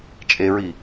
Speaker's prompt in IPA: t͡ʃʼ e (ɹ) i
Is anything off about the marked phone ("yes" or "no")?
no